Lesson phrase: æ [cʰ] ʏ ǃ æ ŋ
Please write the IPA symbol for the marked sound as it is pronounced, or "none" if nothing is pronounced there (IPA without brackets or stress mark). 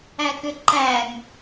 k